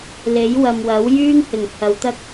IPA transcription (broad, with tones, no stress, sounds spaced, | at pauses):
l e˨˥ j w ɐ˨ m w ɐ˨˥ w j yː˥ ŋ h ɪ˨˩ ŋ h ɐ˨˧ w t̪ ɐ˥ k̚